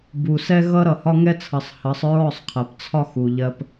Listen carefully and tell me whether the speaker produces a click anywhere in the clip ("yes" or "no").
no